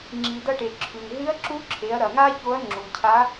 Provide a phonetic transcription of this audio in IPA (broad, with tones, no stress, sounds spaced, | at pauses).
ŋ͡ǁ i˩ d ɐ˧ ʈ e˩ ǁʰ ʉ˩ n ɦ ɨ˧˥ ɐ̯ ǁ u˧˥ ǁʰ e˩˧ ɐ̯ ɾ ɐ˩ ŋ a˥ ç o˧˥ ɐ̯ ŋ͡ǁ u˩ cʰ a˧˥